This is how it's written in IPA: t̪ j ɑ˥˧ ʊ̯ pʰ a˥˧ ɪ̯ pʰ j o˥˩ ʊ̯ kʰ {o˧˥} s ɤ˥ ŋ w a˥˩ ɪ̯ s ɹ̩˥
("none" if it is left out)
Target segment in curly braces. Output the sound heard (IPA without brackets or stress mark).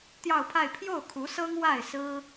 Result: u˧˥